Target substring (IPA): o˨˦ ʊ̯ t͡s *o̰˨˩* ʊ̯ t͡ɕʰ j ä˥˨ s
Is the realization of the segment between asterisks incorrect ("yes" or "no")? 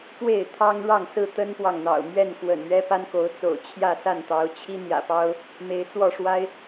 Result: no